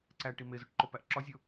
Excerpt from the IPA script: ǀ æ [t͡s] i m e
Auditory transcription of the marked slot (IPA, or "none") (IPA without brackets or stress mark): ʈ